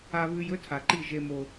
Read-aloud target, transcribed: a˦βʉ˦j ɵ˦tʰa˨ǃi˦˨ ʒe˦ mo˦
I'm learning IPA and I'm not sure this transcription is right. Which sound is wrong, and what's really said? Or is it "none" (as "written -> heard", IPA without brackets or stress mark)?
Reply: none